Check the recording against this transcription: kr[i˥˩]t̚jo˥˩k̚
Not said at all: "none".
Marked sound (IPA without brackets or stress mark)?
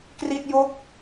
i˥˩